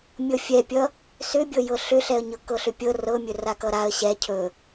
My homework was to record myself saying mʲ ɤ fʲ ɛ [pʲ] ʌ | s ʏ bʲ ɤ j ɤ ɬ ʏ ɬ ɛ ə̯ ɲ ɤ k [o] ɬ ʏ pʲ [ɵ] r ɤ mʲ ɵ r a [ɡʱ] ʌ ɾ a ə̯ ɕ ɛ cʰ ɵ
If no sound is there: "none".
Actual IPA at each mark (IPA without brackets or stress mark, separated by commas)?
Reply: pʲ, ɤ, ɤ, k